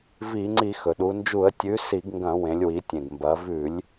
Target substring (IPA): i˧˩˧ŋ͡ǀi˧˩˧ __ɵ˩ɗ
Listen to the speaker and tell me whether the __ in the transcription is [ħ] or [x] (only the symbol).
x